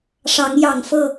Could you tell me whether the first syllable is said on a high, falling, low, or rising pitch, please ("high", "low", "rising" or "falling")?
rising